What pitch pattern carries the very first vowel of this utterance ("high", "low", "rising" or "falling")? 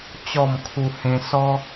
falling